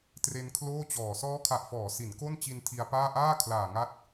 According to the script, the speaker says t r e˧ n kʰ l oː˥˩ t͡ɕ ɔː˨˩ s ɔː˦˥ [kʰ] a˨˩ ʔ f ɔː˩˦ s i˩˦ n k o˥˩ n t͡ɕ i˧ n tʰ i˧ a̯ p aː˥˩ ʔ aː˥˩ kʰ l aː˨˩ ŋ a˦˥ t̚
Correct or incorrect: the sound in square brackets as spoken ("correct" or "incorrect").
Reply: correct